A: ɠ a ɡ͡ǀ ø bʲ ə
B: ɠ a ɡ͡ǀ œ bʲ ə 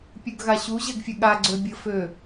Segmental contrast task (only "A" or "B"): A